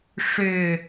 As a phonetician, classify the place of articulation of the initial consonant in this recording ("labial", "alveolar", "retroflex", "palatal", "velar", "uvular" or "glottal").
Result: retroflex